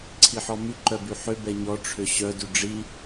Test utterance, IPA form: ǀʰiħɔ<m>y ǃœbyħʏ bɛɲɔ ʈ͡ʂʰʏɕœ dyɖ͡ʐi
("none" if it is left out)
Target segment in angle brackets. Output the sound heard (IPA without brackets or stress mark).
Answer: m